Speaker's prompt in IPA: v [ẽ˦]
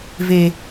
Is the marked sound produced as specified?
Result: no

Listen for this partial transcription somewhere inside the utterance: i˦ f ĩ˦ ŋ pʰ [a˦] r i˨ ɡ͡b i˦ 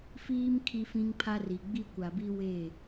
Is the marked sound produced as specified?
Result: yes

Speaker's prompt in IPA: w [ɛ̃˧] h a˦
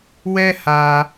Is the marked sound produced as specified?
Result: no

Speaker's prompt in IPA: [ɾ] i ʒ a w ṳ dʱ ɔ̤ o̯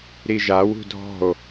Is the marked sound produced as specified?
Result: yes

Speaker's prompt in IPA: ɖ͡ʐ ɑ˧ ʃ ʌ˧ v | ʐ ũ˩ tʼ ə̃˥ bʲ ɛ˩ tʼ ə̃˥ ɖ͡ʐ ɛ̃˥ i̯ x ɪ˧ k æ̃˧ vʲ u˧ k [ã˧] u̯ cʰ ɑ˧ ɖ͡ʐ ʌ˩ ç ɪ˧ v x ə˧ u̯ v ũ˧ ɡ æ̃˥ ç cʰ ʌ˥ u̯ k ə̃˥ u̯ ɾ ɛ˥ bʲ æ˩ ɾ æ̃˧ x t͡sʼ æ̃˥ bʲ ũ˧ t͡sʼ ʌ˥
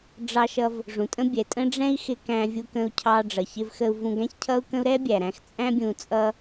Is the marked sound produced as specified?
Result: no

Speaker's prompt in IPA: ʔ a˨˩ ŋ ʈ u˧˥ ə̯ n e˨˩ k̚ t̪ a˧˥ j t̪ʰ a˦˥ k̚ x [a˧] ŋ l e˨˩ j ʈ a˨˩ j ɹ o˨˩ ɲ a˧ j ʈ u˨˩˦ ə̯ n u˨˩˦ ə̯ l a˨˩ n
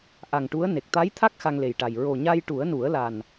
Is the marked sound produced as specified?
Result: yes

